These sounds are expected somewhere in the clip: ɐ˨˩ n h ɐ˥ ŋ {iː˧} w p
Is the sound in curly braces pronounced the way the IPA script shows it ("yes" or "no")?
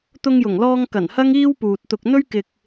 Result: no